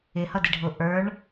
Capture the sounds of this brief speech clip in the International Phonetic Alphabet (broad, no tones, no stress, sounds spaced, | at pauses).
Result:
ɪ h ʌ d i ɖʱ ʊ ʔ ə˞ ɳ